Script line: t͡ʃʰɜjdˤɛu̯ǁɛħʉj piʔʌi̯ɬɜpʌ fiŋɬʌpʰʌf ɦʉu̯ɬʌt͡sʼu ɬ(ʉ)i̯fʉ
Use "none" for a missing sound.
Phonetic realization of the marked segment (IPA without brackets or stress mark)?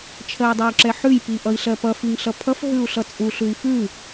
ʉ